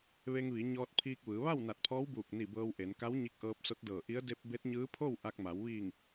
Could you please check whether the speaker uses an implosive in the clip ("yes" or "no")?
no